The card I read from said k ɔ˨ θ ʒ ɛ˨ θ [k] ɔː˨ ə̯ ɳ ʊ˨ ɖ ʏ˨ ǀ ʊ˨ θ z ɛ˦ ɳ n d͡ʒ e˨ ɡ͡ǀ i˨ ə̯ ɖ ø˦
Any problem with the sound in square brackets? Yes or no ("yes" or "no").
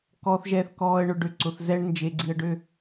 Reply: no